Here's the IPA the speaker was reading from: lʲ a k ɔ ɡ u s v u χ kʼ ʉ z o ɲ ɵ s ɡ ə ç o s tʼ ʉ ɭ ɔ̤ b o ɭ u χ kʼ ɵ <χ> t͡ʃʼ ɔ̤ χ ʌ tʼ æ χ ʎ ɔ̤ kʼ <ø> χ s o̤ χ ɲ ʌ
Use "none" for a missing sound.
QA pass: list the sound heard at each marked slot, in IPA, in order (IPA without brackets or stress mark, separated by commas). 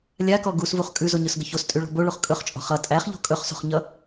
χ, ɵ